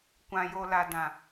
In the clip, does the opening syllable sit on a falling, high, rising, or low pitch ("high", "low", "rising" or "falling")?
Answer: low